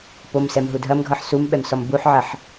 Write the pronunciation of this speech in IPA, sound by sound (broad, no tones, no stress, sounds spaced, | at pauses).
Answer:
p o m s ɛ m ɦ u dʱ ɐ m ɡʱ ʌ ħ s u m ɓ ɛ m s ɔ m b u ħ ʕ ɐ ħ